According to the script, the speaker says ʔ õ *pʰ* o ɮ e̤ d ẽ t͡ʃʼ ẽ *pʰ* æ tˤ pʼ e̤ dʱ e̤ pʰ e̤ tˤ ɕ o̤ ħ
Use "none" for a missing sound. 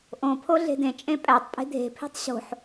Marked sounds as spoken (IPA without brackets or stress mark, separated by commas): pʰ, pʼ